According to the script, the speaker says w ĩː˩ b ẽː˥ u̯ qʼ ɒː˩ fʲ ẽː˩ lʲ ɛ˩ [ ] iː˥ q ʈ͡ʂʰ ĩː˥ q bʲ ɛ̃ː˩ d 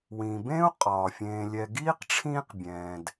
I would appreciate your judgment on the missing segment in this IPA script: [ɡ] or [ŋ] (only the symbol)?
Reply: ɡ